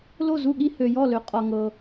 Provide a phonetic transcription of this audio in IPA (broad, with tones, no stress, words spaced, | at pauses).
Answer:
lo˥˩zu˥˩ɠi˥˧ hø˨jɔ˥˩lø˨˩˦ qʼɒ˨ŋɤ˨